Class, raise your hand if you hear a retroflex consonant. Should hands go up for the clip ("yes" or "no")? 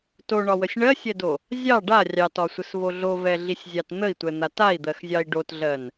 yes